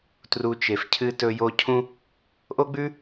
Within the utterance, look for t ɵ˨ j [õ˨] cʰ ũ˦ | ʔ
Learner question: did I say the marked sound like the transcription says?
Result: no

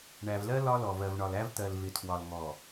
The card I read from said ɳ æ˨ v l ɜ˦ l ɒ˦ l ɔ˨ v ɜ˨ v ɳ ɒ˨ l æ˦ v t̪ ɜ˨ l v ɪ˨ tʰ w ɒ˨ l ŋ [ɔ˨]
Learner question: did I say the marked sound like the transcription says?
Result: yes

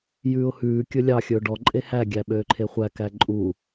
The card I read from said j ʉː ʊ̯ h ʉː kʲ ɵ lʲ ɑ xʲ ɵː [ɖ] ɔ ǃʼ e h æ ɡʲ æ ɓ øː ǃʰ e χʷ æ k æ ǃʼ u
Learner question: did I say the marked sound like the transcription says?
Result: yes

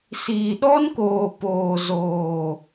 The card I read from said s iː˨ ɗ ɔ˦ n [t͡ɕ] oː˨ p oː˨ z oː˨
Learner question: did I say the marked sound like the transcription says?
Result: no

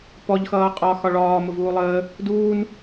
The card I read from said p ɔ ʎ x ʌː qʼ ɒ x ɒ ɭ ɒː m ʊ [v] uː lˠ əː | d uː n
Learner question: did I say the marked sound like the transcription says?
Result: yes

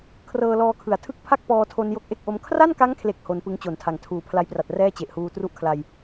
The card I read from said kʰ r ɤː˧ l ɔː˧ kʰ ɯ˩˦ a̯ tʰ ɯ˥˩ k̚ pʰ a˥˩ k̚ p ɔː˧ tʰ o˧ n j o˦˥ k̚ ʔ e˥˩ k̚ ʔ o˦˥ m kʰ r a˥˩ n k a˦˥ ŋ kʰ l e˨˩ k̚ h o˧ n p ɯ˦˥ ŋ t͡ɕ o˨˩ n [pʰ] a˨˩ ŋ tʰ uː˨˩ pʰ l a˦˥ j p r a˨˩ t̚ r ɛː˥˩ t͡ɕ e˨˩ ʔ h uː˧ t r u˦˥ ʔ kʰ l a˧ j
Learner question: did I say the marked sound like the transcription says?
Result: no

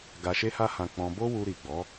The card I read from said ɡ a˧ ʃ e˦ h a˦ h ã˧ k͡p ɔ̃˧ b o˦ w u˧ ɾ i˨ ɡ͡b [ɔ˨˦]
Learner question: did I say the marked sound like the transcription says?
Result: yes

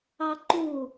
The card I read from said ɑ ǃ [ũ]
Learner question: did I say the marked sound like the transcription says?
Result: no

